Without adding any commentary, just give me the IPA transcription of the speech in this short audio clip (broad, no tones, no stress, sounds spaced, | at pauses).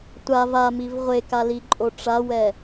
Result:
tʷ a v a m i v ʁʷ e k a l i ǃʼ o ʈ͡ʂ a w ɛ